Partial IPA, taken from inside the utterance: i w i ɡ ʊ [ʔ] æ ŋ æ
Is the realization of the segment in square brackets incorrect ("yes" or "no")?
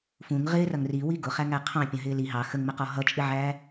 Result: yes